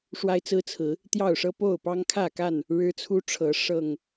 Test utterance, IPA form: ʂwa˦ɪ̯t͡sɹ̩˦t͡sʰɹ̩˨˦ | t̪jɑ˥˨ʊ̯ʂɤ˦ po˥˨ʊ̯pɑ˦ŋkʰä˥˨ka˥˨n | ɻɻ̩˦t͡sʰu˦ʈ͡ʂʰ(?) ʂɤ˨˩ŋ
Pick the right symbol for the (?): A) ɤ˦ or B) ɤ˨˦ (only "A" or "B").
B